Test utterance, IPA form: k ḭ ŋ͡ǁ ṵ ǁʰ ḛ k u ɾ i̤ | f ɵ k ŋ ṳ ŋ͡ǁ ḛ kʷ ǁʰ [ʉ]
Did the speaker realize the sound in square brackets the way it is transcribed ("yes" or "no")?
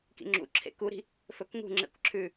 yes